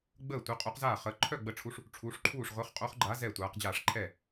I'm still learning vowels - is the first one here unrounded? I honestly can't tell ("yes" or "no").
yes